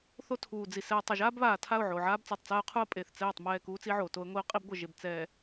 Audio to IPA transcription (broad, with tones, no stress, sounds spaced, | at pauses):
θ o˦ tʰ uː˨ d͡z i˨ s ɛ˨ tˤ ɘ˨ ʒ aː˦ b β aː˨ tʰ a˦˨ ʊ̯ ʕ oː˨ ʕ aː˦ b t͡s ɨː˨ tˤ t͡s aː˦ ʊ̯ qʰ u˦ ə̯ pʼ e˨ θ t͡s ɛː˦˨ tˤ m ɛː˦˨ k uː˦ t͡s i˦ ʕ oː˨ t o˦ ə̯ ŋʷ i˦ ʊ̯ qʼ i˦ b ɡʷ ɘ˨ ʒ e˨ b t͡s ɛ˨